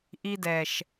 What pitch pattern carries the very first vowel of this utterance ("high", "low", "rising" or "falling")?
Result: high